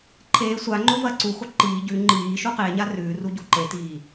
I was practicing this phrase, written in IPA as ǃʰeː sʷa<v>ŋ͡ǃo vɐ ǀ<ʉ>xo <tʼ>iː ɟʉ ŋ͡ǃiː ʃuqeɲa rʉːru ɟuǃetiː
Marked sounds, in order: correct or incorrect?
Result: incorrect, incorrect, incorrect

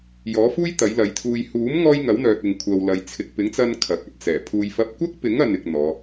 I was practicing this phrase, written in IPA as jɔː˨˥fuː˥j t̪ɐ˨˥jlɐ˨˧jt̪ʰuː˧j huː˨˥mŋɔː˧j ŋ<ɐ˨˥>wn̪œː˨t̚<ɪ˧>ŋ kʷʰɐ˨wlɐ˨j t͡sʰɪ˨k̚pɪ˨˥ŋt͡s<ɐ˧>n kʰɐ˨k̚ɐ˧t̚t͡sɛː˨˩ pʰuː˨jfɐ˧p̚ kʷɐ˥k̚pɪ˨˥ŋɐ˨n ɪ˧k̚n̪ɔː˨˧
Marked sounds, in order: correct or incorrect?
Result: correct, incorrect, correct

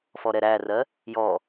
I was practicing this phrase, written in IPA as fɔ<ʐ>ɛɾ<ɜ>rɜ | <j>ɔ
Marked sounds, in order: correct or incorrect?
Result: incorrect, incorrect, correct

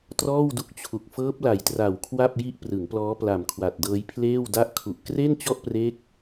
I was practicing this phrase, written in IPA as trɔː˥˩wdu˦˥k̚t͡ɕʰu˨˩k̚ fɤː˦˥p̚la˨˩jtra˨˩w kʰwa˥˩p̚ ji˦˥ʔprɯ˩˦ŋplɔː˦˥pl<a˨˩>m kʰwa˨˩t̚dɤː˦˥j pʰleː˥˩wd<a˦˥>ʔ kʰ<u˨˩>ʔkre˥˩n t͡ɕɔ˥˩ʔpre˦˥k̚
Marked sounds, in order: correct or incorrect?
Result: correct, incorrect, correct

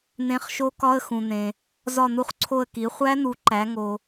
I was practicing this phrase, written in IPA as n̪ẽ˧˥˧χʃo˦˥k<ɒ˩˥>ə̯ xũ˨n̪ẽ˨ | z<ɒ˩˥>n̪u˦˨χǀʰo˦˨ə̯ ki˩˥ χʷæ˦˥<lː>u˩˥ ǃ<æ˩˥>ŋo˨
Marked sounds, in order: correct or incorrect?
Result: incorrect, incorrect, incorrect, correct

